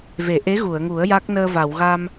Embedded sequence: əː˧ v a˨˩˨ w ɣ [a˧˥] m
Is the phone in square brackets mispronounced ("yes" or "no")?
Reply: yes